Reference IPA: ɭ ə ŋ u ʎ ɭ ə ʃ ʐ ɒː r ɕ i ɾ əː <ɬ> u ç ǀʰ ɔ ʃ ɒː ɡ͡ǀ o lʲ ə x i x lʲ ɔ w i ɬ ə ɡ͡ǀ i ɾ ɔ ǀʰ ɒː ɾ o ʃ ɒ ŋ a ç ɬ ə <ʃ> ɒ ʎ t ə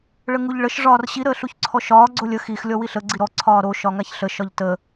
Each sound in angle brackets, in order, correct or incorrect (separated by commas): correct, correct